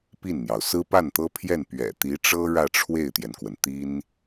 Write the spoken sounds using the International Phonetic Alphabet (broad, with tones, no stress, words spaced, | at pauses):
pi˥˩nn̪jɑ˩ʊ̯ sɹ̩˥pa˥˩nt̪ɤ˥pʰjɛ˥˩n pɥɛ̰˨˩ t̪i˧˥ʈ͡ʂɤ˥ ɻä˥˧ʈ͡ʂʰwe˥˩ɪ̯t̪jɛ˩nkwə˩n t̪i˥n